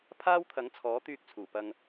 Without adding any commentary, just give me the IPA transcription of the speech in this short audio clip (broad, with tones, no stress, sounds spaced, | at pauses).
pʰ aː˥ w t̪ʰ ɐ˨˥ ŋ t͡sʰ ɔː˨˥ t̪ yː˧ k̚ t͡sʰ uː˨˩ p ɐ˧ ŋ